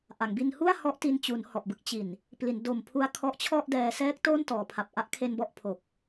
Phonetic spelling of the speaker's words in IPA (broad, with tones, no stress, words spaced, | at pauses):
ʔa˩˦ŋbi˧nhu˥˩a̯ hɔ˦˥ʔti˧n t͡ɕu˩˦n hɔ˨˩ʔbɯ˦˥k̚ t͡ɕi˨˩n | pli˩˦ndo˨˩mpʰu˧a̯ kʰɔ˦˥ʔt͡ɕʰɔ˥˩ʔdɛː˧ sɛː˦˥k̚ toː˥˩n tɔː˩˦pʰa˨˩p̚ ʔa˦˥ʔkʰe˧n bɔ˥˩ʔpʰo˨˩k̚